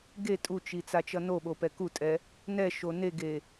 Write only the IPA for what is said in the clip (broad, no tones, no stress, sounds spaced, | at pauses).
ɡ e tʼ u t͡ʃ i t͡s a t͡ʃ ʌ n o ɓ o p ɛ k u tʼ ɛ | n ɛ ʃ o n e ɡ e